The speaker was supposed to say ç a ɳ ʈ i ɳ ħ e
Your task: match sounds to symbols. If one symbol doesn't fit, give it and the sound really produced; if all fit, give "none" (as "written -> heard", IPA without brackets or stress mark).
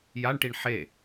ç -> j